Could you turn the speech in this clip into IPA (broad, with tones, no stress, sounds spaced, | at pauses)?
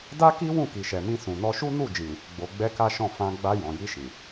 d a˦ k i˦ w ũ˦˨ k i˨ ʃ ɛ˨ m ĩ˧ s ũ˨ n ɔ˧ ʃ u˦ n u˦˨ d͡ʒ ĩ˨ | ɡ͡b o˧ ɡ͡b ɛ˦ k a˦ ʃ ɔ̃˦˨ f ã˧ ɡ͡b a˧ j ɔ̃˨ j i˧ ʃ ĩ˨